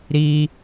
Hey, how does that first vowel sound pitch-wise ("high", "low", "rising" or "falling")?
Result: high